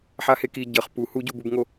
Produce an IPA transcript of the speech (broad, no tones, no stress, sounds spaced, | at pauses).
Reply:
ħ a h e k i ɟ ʌ χ p u h u ɟ u b u b ŋ o